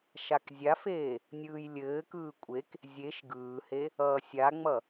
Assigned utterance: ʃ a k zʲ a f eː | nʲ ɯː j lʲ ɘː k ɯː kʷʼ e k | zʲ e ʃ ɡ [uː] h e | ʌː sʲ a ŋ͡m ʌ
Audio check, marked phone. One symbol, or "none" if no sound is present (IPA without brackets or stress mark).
ɯː